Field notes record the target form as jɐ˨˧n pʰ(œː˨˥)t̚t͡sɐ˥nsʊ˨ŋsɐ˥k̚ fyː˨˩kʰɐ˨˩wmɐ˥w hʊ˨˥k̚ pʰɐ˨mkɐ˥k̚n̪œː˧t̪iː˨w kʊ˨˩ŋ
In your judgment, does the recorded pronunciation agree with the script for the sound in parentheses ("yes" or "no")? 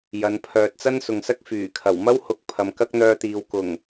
no